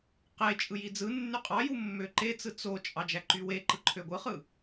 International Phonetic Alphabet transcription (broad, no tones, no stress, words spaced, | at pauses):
qet͡ʃʼɯ jid͡zɯnːy qʼɑju mːøǃet͡sɯ t͡sot͡ʃʼɑ d͡ʒæǃyweǃɯ ǃʰøɡʷɯχɯ